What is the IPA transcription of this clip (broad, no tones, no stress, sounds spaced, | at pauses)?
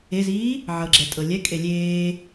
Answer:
e z iː | ʕ ɤ ɡ͡ǁ ɛ tʼ ɤ lʲ ɛ kʼ e lʲ eː